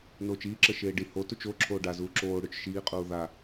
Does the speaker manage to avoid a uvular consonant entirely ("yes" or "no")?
no